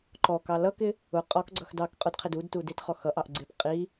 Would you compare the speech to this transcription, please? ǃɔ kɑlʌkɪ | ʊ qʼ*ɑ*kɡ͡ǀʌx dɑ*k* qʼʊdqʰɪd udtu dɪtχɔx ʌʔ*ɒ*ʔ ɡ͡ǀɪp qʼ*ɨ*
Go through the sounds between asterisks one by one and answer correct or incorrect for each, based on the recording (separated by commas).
incorrect, correct, incorrect, incorrect